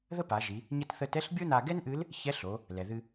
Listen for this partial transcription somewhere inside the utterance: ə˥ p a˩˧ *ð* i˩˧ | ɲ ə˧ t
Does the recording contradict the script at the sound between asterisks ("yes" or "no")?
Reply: yes